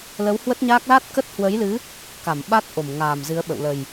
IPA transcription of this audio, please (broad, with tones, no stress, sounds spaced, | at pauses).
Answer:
l ə˨˦ w h w ə˦˥ t̚ ɲ aː˦˥ k̚ l a˦˥ t̚ k ə˦˥ t̚ h w ə˨˦ j l ɨ˨˦ | k a˧˩ m ɓ a˦˥ t̚ ʔ o˧˩ m ŋ aː˨˩ m z ɨ˨˦ ə̯ ɓ ə̰˧˨ w l ə˨˩ j